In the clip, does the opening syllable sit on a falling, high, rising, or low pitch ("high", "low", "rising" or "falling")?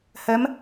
rising